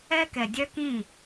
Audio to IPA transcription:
ɛ˦kɛ˨dʲœ˦kĩ˦˨

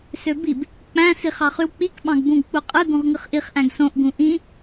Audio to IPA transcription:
søbib | k͡pæ̃ siχɑχywk͡pik ɓɑ̃ɡbũɡ k͡puqʼɯ ɡũʁŋɯχʔiχ ʔæ̃ɡsõʔ ɡũʔĩ

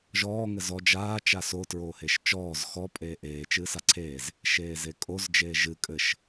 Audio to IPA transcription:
ʒɔː ŋɘzɔ d͡ʒaː t͡ʃaso tɹoːheʃt͡ʃɔːz xɔ pʼeːʔeː t͡ʃɨːsaǀʰeːz | ʃeːzekʼoz d͡ʒeːʒɨ kʼɘʃ

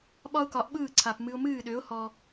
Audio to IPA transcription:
ɓɒ˥ʊ̯kɒ˩˥ʔɓɯː˥˩ǀʰa˩p mɨ˧ʊ̯mɨː˥˩ɗø˩˥ʊ̯ hɔ˩

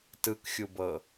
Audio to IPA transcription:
tɯkxʲubɤ

